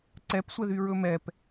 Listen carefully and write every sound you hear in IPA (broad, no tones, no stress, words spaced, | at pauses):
ǀɛpsʷɛðy ɹɵmɛp